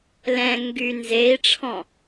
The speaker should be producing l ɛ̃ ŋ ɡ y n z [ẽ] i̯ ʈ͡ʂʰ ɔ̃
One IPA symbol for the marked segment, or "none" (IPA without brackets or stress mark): e